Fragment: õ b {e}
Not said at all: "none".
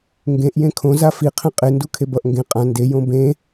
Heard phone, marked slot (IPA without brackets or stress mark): ẽ